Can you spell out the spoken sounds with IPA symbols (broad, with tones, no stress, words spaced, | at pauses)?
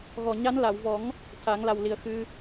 ɣɔ˨˩ɲa˧˥n la˨˩˨wvɔ˨˩˦ŋ | ca˨˩˦ŋla˨˩w li˨˩ə̯xɨ˧